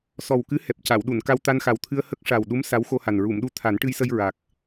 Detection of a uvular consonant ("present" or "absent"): absent